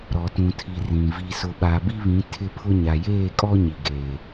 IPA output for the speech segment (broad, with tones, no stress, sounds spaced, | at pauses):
ɾ ɔ˨ t ũ˨ tʰ i˨ r ĩ˨ v i˨ s ʊ˨ ɓ a˨ b i˦ β ĩ˨˦ tʰ ɪ˦ pʰ ʊ˦ ɲ a˨ j eː˦˨ kʼ ɔ˦ ɲ i˨ ɡ eː˨